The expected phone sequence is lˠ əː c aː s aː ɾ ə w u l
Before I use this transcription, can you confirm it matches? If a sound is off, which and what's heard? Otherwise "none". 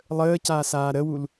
none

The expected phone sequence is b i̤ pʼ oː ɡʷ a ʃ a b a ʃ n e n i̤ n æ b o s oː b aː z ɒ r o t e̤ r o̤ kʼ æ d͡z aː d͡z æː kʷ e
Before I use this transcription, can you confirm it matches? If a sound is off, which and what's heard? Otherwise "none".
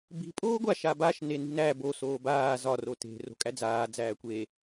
none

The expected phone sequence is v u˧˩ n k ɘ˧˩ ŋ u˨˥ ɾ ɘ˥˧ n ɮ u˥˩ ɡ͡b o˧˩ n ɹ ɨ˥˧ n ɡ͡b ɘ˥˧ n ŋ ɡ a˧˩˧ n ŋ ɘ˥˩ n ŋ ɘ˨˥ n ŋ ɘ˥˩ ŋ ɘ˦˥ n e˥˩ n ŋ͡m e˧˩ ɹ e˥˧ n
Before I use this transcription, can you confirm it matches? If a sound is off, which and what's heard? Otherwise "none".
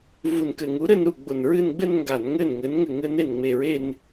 ɮ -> ɾ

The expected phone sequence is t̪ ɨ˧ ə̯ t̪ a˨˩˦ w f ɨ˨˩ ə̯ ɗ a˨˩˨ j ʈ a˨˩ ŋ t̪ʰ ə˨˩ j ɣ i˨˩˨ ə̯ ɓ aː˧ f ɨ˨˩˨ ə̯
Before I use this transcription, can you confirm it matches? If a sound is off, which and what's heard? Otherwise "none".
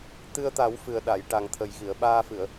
none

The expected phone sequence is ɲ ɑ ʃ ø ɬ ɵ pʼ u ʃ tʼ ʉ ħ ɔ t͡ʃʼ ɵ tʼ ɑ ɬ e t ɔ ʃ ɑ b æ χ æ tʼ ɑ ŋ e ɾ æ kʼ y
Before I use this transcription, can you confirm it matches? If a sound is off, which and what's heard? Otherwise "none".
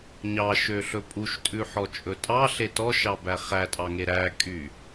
none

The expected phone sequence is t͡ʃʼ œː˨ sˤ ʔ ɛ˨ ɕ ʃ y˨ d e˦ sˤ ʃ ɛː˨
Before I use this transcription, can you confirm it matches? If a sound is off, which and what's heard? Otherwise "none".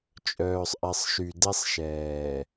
ɕ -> sˤ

